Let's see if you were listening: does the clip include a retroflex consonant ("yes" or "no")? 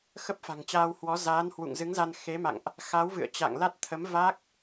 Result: no